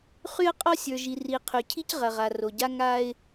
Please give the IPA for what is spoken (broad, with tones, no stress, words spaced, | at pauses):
χy˦ə̯ qʼɔ˦sʲə˞˨ ʒi˨ri˨qʰy˨cʰi˦c ʁɐ˨ʁa˨ro˨ɟa˦ ŋa˦ɪ̯